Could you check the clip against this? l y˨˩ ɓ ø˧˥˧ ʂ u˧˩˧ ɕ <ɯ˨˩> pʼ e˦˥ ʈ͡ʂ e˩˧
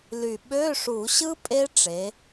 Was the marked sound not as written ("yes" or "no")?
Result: yes